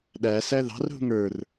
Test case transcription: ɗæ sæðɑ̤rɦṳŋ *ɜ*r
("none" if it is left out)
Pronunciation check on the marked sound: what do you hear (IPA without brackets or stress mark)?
ə˞